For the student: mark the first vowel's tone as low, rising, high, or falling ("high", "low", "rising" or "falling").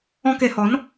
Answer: high